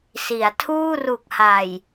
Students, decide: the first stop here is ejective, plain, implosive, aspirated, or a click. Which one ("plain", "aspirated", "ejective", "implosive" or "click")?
aspirated